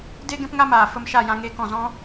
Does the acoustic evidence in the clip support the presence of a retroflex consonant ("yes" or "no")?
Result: no